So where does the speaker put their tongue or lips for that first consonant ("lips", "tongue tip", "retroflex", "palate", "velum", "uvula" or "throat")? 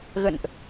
velum